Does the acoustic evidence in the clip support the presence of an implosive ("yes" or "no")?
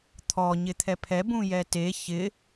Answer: no